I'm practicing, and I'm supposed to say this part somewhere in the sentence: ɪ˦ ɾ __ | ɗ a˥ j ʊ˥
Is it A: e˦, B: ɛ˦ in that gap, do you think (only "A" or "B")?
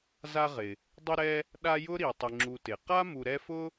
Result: B